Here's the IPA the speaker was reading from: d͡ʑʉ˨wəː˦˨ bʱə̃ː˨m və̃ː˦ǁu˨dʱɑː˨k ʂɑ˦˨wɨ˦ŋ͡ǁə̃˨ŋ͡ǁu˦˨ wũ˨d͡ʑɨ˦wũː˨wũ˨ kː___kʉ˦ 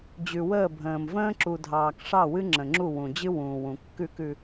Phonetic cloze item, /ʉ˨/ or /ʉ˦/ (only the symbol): ʉ˦